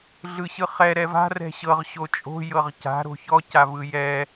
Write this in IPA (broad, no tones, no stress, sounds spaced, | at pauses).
ɮ ɯ ɕ ɯ χ ɛ ɾ ɛ v a̤ r ɛ̤ ɕ ɤ ʁ ɕ o t͡ʃʼ o̤ j ɤ ʁ c a̤ ɾ o̤ ç ɔ c a v ɯ j ɛ